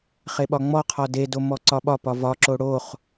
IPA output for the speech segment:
χ e ɓ ɒ ŋ͡m ɔ qʰ ɒ d e d o m ɔ ǀ ɒ ɓ ɒ p ɒ v ɒ ǁ o ɽ o χ

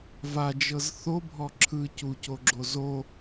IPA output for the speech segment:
v a d͡ʒ ɤ z θ o bʱ ɔ ǁʰ ɯ c u c o ɡ͡ǁ o z o

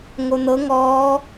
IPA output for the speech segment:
ŋ o n̪ ɤ ŋ ɔː

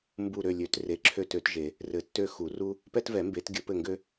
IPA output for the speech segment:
m b u˦˨ ɾ ø˦˨ lʲ ø˨˩˦ t r e˨˩˦ ǁʰ ø˦˨ t ø˨˩˦ t ʒ e˨˩˦ | r ɘ˨˩˦ tː ø˦˨ x u˨˩˦ r u˥ | p ɛ˥ t v ɛ˨˩˦ m b e˨˩˦ t ɡʲ ə˨˩˦ p ɘ˦˨ ŋ ɡ ø˥

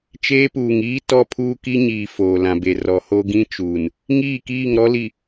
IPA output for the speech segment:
t͡ʃ eː˦ p uː˨ ŋ iː˦ t ɔ˦ pʰ uː˦ k i˦ ɲ iː˨ f oː˨ l ã˨ b e˨ r ɔ˨ h o˦ ɡ ĩ˦ t͡ʃ uː˨ n | ŋ iː˦˨ k iː˦˨ ŋ ɾ ɔ˦ l i˨

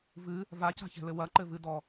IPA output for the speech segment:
v ɨ | v a c a̤ ç ɛ̤ l ɘ w ɐ ǃ ɘ v ɨ d ɔ

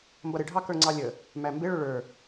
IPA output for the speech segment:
m b ʌ ɾ ɪ ɖʱ ɑ k ə˞ ŋ͡ǀ ɑ lʲ ə | m æ m b ɪ ɭ ʊ ɭ ə˞

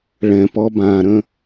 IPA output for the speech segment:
ɭ ɛ̃ p ɔ b ã ɾ ə̃

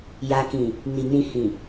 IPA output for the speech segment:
j a˧ k ĩ˨ | n i˨ n ĩ˧ h ĩ˨

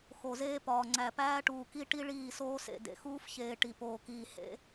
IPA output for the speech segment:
x o˨ z eː˦ p ɒː˨ ŋ͡ǀ æ˨ p æː˦ ʈ uː˨ k i˦ ʈ i˦ ɭ iː˦˨ s oː˦ s ḛ˨ d ḛ˨ x uː˦ f ç eː˨ ʈ i˨ p oː˨ k iː˨ h ḛ˦

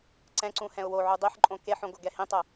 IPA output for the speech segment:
ǀ ɛ̃ ǀ ũ h ɛ̃ ʊ̯ w o ʕ u dˤ i ħ ǃʼ õ k e ħ õ ɡ o ɡ ɛ h ĩ tˤ o

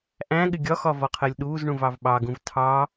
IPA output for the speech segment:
ʔ æ̃ ɠ ɪ ɡʲ ɒ x ɒ v ɒ qʰ ɜ lʲ ɗ uː z ɳ ũ v ɑ v ɓ ɑ ɡ ũ v tʰ ɑ

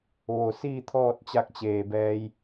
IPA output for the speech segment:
ʋ o˧˩ s iː˥˨ t̪ʰ ɔː˥˨ t̚ t͡ɕ a˧ k̚ t͡ɕ eː˧˩ b ɛː˧ j

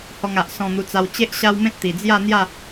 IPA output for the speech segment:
h ɔ˧ ŋ a˨ ʔ s ɔ̃˧ n̪ u˧ t͡s a˧ w t͡ɕ e˦ ʔ ɕ a˦ w m ẽ˦ t̚ t̪ i˨˩ d͡z j a˥˧ n̪ j a˥˧

